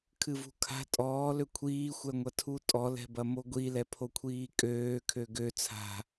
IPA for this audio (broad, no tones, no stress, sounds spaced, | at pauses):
kʰ ɨ v ṳ kʰ a̤ tʼ ɔː l ø kʷʰ iː xʷ ɛ ŋʷ ɐ tʰ u tʼ ɔ l ɛ̤ b ɐ m o ɡʷ i l ɛ pʰ o kʷʰ iː kʼ øː kʰ ø ɡ ø t͡sʰ a̤